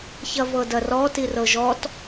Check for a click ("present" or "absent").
absent